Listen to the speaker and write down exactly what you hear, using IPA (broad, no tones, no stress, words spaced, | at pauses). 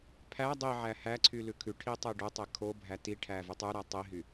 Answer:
pʰæ dˤiʕæ hæǀʰy lʉkʰʉʈʰi tˤeɖotˤe kʰobʱæ tiʈʰæ vytˤʉɾæ tˤiɦy